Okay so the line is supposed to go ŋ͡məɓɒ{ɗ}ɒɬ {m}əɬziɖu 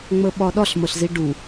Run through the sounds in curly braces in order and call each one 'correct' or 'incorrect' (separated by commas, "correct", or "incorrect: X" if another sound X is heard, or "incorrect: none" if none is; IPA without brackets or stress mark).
correct, correct